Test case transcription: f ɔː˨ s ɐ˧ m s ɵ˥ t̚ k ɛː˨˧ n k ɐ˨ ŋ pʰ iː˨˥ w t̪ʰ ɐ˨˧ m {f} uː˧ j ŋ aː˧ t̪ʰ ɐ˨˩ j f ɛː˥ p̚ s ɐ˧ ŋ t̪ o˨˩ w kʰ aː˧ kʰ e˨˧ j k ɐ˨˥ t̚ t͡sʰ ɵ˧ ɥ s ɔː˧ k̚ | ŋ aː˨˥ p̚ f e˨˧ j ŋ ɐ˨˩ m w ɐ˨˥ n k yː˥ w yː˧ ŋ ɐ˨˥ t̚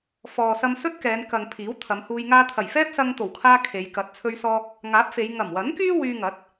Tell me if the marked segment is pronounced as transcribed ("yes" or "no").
no